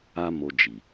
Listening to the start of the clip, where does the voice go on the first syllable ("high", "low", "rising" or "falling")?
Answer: high